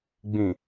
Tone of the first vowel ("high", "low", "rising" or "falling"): low